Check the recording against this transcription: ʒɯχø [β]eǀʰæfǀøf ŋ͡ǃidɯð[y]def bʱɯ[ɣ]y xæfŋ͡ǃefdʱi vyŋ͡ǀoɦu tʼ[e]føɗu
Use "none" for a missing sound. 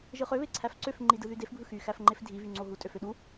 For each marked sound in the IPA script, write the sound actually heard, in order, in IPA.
β, y, x, ø

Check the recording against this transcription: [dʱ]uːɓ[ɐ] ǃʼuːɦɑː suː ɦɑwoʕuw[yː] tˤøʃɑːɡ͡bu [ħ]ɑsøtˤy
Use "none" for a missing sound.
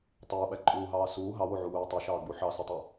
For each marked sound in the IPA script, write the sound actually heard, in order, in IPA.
tˤ, æ, yː, ħ

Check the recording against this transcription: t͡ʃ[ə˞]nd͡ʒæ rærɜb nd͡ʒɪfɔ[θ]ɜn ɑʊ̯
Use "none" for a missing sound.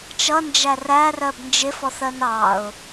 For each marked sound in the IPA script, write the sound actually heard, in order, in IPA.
ʌ, θ

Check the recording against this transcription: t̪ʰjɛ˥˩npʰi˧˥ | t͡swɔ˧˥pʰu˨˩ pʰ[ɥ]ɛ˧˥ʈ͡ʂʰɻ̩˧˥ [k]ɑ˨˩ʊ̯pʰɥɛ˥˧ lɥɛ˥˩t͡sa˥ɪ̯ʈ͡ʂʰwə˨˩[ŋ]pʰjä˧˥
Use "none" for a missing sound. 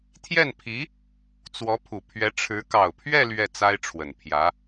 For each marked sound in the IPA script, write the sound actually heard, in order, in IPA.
ɥ, k, n

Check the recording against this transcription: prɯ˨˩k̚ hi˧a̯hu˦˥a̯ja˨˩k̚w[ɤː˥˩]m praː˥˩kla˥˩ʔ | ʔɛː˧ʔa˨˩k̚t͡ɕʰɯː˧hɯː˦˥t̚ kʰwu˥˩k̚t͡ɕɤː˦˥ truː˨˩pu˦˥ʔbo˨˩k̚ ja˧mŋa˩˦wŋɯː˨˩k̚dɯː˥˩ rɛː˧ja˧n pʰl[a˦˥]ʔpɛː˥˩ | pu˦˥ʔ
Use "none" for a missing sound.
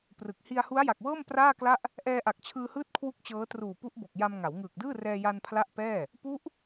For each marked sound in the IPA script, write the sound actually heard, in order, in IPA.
ɤː˥˩, a˦˥

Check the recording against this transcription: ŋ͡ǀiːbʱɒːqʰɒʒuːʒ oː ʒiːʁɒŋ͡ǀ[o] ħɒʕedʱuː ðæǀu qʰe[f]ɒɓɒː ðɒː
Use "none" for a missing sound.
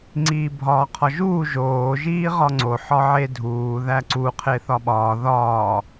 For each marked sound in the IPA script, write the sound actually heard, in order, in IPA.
o, θ

